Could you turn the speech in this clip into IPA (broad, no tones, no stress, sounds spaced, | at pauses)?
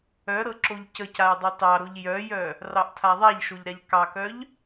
œ ɾ ɤ ǁ o ʎ c ə c a j dˤ ɑ t ɑ ɾ o ʎ j œ j œ | r ɑ ʔ tʰ a ðˤ a ʎ ʃ o ʎ ɾ a ʎ k ɑ k œ ʎ